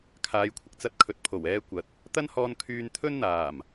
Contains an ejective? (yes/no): no